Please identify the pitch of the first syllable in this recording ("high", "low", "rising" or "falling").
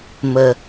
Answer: low